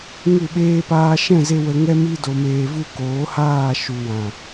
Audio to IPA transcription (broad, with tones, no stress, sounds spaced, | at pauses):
ŋ u˦˨ ɓ eː˦ p aː˧ ʃ ɛ̃˦˨ z e˧ w ə˧ ŋ ɛ˦ m i˦ d o˧ m eː˧ v u˦ k oː˨˦ h aː˦˨ ʃ u˨ w ã˨